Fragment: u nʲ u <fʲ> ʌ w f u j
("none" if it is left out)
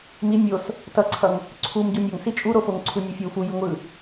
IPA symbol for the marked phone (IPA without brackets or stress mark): fʲ